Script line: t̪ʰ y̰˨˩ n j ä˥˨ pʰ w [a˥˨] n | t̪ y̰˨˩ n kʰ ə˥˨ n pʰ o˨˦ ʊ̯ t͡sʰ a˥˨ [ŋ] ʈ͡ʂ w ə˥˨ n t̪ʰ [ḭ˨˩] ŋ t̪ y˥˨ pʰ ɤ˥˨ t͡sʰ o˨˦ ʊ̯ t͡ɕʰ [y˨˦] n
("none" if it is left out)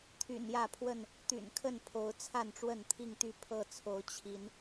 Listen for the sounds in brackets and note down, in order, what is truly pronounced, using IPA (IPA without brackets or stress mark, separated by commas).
ə˥˨, n, i˥˨, i˨˦